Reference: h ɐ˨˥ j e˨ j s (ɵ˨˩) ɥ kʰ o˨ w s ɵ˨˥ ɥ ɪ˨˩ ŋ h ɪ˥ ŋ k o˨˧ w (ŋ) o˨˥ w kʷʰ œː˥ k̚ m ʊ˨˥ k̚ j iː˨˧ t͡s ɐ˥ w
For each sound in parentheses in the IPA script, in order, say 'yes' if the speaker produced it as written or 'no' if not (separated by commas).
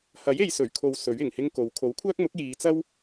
yes, no